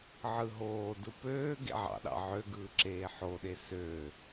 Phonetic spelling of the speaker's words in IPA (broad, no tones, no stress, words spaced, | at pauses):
ʕɯɦoːdɯ pøː ɡḛʕɑ̰ɗɑ̰ ʕøɡɯː ǁeːħoɗe sø